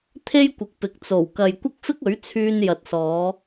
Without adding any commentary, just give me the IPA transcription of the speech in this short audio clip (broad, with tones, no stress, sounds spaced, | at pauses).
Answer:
t̪ʰ e˥ j kʷ ɪ˨˥ k̚ p ɪ˨ k̚ t͡s o˨˩ w k ɐ˨ j kʷ ɐ˥ k̚ f ɪ˥ k̚ ɵ˨˥ ɥ t͡sʰ yː˧ n j ɐ˨ t̚ s ɔː˨˧